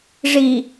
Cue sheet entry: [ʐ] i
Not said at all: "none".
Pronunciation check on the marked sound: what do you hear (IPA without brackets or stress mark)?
ʐ